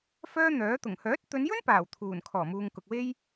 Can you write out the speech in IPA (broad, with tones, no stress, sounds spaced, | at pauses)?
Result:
f œː˥ n̪ œː˨˥ t̪ ʊ˨˩ ŋ h œː˨˥ t̚ t̪ ɵ˨˧ n j ɵ˥ n p aː˨˩ w t̪ʰ uː˨˩ n kʰ ɔː˨˩ m uː˨ ŋ k ʊ˨ k̚ w e˥ j